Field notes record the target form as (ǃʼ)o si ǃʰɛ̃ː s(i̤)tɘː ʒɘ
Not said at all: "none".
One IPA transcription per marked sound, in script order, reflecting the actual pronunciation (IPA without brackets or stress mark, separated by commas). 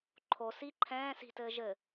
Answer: ǃʰ, i̤